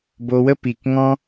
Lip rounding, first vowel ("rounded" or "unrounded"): rounded